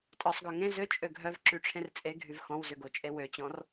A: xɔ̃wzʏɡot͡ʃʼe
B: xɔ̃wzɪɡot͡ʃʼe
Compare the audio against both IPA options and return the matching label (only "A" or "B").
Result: A